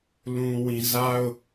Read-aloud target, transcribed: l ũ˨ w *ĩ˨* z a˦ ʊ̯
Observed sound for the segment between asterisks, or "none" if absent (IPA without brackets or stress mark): ĩ˨